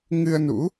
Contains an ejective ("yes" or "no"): no